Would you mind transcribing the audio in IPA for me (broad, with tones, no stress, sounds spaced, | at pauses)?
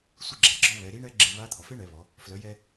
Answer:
sʷ i˧ ɡ͡ǁ a˩ ɡ͡ǁ ɔ˧ β ɛ˩˧ ɾ i˧˥ ɳ ɛ˧˥ ɡ͡ǁ e˧ β a˧˥ t̪ʰ ɔ˩ f e˥ ɳ ɛ˩˧ β ɔ˩˧ | f l œ˩˧ j ɛ˧